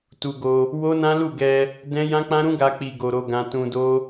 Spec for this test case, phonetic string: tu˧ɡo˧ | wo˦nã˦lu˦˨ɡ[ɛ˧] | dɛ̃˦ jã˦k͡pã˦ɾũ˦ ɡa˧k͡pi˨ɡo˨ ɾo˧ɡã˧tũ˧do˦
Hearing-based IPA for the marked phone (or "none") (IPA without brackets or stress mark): ɛ˧